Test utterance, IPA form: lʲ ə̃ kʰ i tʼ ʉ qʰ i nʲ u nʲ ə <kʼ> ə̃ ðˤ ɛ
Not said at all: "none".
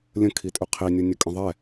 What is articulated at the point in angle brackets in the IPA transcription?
kʼ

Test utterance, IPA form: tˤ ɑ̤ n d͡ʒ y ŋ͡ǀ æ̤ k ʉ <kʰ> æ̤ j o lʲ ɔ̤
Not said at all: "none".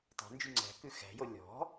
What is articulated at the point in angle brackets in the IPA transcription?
x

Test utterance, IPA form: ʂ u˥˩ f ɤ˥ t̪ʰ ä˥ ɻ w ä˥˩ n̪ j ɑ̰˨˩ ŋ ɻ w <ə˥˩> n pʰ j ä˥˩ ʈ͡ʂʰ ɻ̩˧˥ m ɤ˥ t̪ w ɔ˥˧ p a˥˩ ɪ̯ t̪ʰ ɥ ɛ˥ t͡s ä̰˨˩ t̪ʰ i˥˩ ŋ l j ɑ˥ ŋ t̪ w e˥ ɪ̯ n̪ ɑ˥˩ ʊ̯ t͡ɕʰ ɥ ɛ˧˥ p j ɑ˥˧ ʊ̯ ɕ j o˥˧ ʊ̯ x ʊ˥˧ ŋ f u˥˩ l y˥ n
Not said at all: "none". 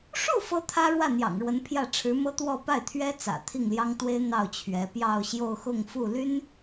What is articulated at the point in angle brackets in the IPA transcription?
ə˧˥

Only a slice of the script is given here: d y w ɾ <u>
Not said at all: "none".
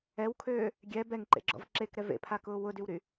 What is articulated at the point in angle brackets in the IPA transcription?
y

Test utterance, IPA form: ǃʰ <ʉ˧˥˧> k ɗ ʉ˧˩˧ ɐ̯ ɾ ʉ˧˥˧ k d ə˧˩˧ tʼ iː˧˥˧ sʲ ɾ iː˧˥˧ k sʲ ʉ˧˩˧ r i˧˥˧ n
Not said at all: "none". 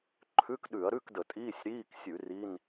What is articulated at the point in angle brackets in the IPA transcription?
ʉ˧˥˧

